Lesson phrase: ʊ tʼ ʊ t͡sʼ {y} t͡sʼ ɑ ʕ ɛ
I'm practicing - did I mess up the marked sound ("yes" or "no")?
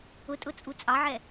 yes